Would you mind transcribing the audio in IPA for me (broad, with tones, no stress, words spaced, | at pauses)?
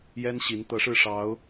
jɛ˥nɕi˧˥n t̪ɤ˧˥ʂɻ̩˥˩ ʂɑ˧˥ʊ̯